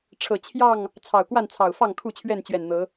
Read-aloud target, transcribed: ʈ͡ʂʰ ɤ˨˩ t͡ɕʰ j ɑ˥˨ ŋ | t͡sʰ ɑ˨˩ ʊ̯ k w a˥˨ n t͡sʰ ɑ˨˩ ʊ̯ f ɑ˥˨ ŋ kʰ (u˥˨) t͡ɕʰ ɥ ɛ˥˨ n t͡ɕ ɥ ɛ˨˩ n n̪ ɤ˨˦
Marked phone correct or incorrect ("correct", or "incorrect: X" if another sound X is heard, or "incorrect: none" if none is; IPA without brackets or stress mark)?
correct